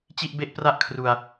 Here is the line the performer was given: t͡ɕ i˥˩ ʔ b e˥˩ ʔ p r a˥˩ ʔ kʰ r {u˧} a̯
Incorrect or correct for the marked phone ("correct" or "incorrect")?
correct